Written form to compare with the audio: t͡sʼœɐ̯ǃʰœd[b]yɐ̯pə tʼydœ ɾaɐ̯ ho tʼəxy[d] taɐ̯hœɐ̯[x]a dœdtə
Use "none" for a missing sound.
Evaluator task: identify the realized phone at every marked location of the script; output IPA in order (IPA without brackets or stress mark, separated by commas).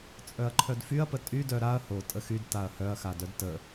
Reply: f, d, x